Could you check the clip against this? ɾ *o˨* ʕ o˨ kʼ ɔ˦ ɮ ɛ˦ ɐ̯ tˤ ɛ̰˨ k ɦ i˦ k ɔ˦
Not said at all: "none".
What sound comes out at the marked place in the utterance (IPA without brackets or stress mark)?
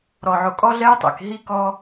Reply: ɔ˨